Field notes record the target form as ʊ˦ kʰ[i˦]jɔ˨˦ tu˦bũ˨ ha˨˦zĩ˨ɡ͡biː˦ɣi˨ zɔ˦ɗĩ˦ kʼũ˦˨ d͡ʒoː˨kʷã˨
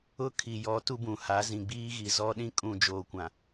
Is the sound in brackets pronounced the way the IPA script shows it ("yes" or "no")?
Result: no